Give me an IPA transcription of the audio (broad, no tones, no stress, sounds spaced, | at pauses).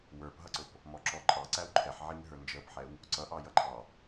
w ə˞ p ɦ ʌ ǀ ʊ p | m ɔ ǁ ɔ ǃʼ ɑ ǀ æ w ǃʰ ɛ ħ ʕ i ŋ ɦ ə˞ n d͡ʒ əː p ħ ɛ w | ǀ ʌ ʔ ɑ j ʌ ǃʰ ɑ